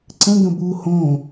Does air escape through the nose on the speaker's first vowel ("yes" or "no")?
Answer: yes